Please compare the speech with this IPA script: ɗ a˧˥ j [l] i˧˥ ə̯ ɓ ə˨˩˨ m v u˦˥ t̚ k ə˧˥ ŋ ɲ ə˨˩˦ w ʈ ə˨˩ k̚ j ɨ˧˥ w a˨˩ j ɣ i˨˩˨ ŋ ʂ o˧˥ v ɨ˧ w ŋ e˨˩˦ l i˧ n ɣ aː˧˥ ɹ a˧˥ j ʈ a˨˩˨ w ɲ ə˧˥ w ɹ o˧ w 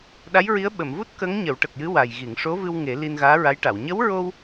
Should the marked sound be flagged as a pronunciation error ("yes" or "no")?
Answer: yes